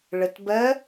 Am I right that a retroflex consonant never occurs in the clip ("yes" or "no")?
no